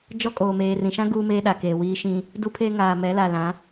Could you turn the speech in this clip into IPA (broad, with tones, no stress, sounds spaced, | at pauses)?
d͡ʒ ɔ˦ kʼ oː˨ m eː˨ r ĩ˨ ʃ ã˦ ɡ uː˦ m eː˦ ɗ a˨ k eː˨ w iː˦ ʃ ĩ˦ | d u˦ pʰ e˦ ŋ aː˨ m ɛ˨˦ l a˨ l ã˨˦